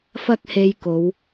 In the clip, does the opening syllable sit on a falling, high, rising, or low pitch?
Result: high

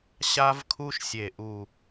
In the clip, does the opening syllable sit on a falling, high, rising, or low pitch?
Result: high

